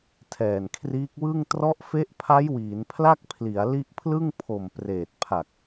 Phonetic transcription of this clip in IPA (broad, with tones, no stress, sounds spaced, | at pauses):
tʰ ɛː˨˩ n kʰ r iː˦˥ k̚ w ɯ˥˩ ŋ t r ɔ˦˥ ʔ f e˦˥ ʔ pʰ a˦˥ j w iː˩˦ n pʰ l a˥˩ k̚ pʰ l i˩˦ a̯ l i˦˥ ʔ pʰ l ɯ˥˩ ŋ pʰ o˨˩ m p r eː˨˩ t̚ pʰ a˨˩ k̚